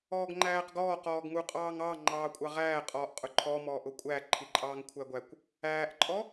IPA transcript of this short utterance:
ɔː ɡ ŋ͡ǃ æː q ɡ ɔː q ɔː ɡ ŋ u qʼ ɑː ŋ ɑː ŋ͡ǃ ɑː kʷʼ ɑ ʁ æː qʼ ɔː ʔ qʼ ʊ ǃʰ ɔ m ɔː ʔ ʊ kʷʼ æ ǃʰ i ǃʼ ɑː ŋ kʷʰ æ ɡʷ æ kʷ | æː ʔ ǃʼ ɔ

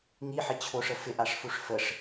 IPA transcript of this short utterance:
ŋ i ħ ɪ t͡ɕʰ o ʂ ə f ɪ ʔ a ʂ f u ʂ f ə ʂ

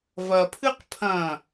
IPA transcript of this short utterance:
v ɐ pʰ ɨ q pʰ ɐ̃

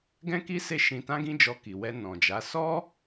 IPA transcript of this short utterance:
ɡ ɛ̃˦ k i˦ s e˦˨ ʃ ĩ˧ t ã˦ ɡ ĩ˦ d͡ʒ ɔ˧ k i˨ w ɛ˧ n ɔ̃˨ d͡ʒ a˨˦ s ɔ˦

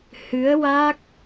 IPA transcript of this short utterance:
h ɨ˧˥ ə̯ w a˦˥ k̚

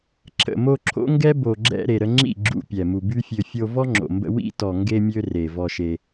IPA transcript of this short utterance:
ǁʰ ə̰˨ m o˧ ǁʰ o̰˦ ŋ ɡ ɛ˦ b o˨ ɡ͡ǁ ɛ̰˧ ɾ e˨ ɾ ə˧ ŋ͡ǁ ḭ˦˨ ɡ͡ǁ ṵ˧ pʲ ɛ˨ m u˨ b y˦ fʲ ø˧ fʲ o˧ v ɔ˦ ŋ͡ǁ o̰˨ m b ə̰˧ w ḭ˦ t ɔ˨ ŋ ɡ e˧ mʲ ø˧ r e˨ v ɔ˧ ʃ e˧

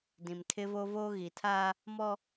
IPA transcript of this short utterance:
d ĩ˨ m tʰ ɪ˦ v o˦ v oː˦ ɣ i˨ tʰ aː˦ | m ɔ˦

